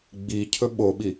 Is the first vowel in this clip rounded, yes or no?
no